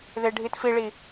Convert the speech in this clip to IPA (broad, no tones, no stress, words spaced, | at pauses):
ðeɖʱitfiɭi